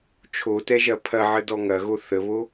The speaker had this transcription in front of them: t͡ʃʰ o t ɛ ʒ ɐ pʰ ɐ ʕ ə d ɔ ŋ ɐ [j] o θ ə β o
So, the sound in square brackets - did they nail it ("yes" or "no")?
no